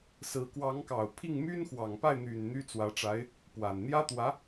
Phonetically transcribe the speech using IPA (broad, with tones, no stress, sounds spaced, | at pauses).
s ɹ̩˧˥ k w ɑ˧˥ ŋ k ɑ˨˩ ʊ̯ pʰ i˥˩ ŋ m y˥ n x w ɑ˨˩ ŋ p a˥˩ ɪ̯ n̪ y˨˩ n n̪ y˥ t͡s w ä˧˥ ʈ͡ʂ a˧˥ ɪ̯ | p w a˨˩ n n̪ j ä˥ t̪ w ä˧˥